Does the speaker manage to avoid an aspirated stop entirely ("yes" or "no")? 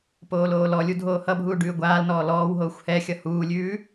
yes